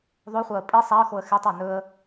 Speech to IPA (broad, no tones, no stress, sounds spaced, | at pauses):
ðˤ o χʷ a ə̯ pʼ i sˤ a ə̯ x o ə̯ x e tˤ a n ɵ ə̯